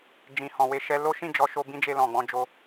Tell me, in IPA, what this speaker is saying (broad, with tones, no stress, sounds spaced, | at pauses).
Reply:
d͡ʒ ĩ˨ h ɔ̃˨ w e˧ ʃ ɛ˧ l o˦ ʃ ĩ˦˨ d͡ʒ ɔ˧ ʃ o˧ b ĩ˦ d͡ʒ e˧ l ɔ̃˨ ɡ͡b ɔ̃˧ d͡ʒ o˦